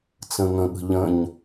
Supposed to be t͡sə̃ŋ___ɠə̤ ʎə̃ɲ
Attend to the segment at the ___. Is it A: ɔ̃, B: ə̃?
B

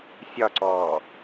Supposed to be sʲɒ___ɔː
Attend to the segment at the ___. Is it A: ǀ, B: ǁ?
A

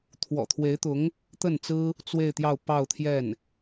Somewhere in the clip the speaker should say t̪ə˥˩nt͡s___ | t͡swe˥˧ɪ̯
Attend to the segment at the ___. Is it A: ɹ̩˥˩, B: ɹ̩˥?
B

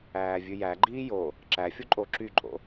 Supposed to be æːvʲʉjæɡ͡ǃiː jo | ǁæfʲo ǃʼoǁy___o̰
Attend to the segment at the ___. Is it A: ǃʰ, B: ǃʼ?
B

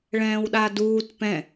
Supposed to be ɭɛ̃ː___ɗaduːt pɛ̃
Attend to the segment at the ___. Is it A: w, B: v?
A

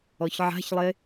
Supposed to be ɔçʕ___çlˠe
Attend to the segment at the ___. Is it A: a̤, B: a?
A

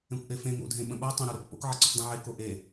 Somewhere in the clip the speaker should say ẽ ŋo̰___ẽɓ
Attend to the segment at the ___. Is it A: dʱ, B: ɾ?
A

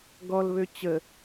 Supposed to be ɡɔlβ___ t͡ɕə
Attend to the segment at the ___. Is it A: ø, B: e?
A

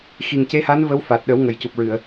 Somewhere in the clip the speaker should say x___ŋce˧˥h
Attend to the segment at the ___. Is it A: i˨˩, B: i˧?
A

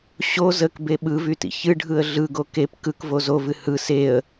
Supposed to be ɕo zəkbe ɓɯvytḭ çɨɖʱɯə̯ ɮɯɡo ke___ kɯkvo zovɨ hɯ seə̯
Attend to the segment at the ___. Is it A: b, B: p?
B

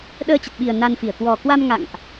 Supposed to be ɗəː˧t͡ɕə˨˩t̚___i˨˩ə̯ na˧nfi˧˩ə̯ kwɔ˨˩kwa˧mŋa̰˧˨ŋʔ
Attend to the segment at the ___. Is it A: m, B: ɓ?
B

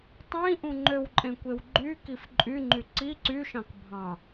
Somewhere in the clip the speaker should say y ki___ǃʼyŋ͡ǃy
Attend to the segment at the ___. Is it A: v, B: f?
B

